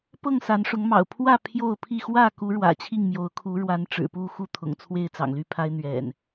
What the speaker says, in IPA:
p ɤ˥˨ ŋ s a˨˦ n ʂ ʊ˨˦ ŋ m ɑ̰˨˩ ʊ̯ pʰ w ä˥˨ pʰ j o˥˨ ʊ̯ pʰ i˥˨ x w ä˥˨ k u˨˦ ɻ w ä̰˨˩ t͡ɕʰ i˥˨ ŋ m j o˨˦ ʊ̯ kʰ u˨˦ ɻ w a˨˦ n ʈ͡ʂ ɻ̩˨˩ p u˥˨ x u˥˨ t̪ʰ ʊ̰˨˩ ŋ t͡sʰ w e˥˨ ɪ̯ t͡s ɑ̰˨˩ ŋ l y˥˨ pʰ a˦ ɪ̯ n̪ ɥ ɛ̰˨˩ n

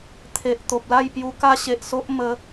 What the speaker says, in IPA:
t̪ʰ e˨ ʔ t̪ o˨ p̚ l a˥˧ j p j u˧ k a˦ ɕ e˨ ʔ s o˦ ʔ m ə˧

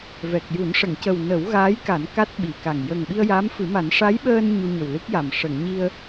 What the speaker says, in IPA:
v ɛ˨˩ k̚ j u˨˩˦ n ʂ ə˨˩˨ ŋ c ə˨˩ w n ə˨˩˦ w ɣ aː˧˥ j k a˨˩˦ n k a˦˥ t̚ ɓ i˨˩˨ k a˨˩ ŋ j ə˨˩ ŋ ɓ i˧ ə̯ j a˧˥ m f ɨ˨˩˦ m a˨˩˦ n ʂ a˧˥ j ɓ əː˧ n ɲ u˧ ɲ ə˨˩ w l ɨ˦˥ k̚ j a˨˩ m ʂ ə˨˩˨ ŋ ɲ i˧ ə̯

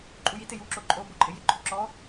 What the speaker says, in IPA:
ǃʼ u j i t ɪ j u ǁ o ǃʼ o b o ǃʼ ɪ j ɪ ǃʰ u ǁ ɔ

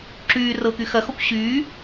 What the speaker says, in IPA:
ǁ yː r ɤ k y x ɐ x ɔ kʷ ɕ yː

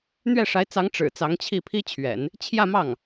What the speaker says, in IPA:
n̪ ɥ ɛ˥˩ ʂ a˧˥ ɪ̯ t͡s ɑ˧˥ ŋ ʈ͡ʂ ɻ̩˨˩ t͡s ɑ˧˥ ŋ t͡ɕʰ i˥˩ pʰ i˥ t͡ɕʰ ɥ ɛ̰˨˩˦ n | t͡ɕʰ j ä˥˧ m ɑ˥˩ ŋ

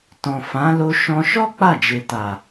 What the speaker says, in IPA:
t ɔ̃˨ f ã˨˦ l o˧ ʃ ɔ̃˧ ʃ ɔ˦ k͡p a˦˨ d͡ʒ e˨ t a˨

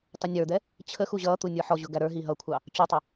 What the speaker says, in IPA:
tˤ ʊ nʲ ə˞ d̪ ɛ | t͡ɕʰ ə x u ʑ ʌː t̪ u nʲ ə˞ ħ ɔ ʑ ʊ ɡ æ ɾ ə˞ ɦ i ɦ ʌ kʷʰ ɑ | t͡ɕ u tˤ ʌ

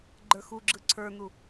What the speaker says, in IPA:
ɡ͡ǃ ə˞ x u ɡ͡ǁ ɯ ǀʰ ə˞ n u

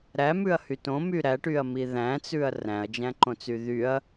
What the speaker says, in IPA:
ɾ æ m ʉ ɐ̯ h y t õ m y ɾ æ ʈ y ɐ̯ m i ð æ̃ t͡s ʉ ɐ̯ r æ̃ ɐ̯ d͡ʒ æ̃ ǃ õ t͡s y ð y ɐ̯

